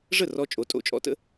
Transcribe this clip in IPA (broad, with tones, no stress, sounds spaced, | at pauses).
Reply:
ʐ ə˥˩ r ɔ˧ t͡ʃʼ o˩˥ tʼ o̰˩˥ t͡ʃʼ ɔ̰˧ t ə̰˥